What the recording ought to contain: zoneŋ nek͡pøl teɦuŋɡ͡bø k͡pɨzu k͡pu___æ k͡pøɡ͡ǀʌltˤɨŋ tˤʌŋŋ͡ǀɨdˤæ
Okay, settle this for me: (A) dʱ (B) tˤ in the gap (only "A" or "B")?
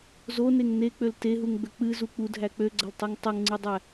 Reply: A